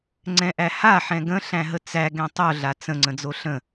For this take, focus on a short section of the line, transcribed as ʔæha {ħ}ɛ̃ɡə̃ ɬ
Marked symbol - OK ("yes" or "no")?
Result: yes